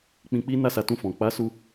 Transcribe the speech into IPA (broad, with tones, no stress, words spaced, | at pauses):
k͡pĩ˧k͡pi˦ na˦˨sa˧tũ˧fɔ̃˨ k͡pa˨˦ su˦